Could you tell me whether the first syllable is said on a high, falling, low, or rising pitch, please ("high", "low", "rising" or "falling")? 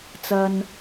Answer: high